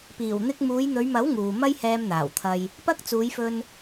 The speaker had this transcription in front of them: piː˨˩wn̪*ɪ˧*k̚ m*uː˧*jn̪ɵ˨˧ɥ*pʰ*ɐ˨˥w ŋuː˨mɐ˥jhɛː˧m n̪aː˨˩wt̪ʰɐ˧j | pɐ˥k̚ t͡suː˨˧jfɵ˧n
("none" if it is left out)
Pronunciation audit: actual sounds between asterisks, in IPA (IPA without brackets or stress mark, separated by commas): ɪ˧, uː˨˧, m